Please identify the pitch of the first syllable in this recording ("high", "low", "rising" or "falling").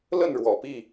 falling